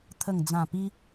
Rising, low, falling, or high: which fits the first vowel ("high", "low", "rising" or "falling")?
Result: low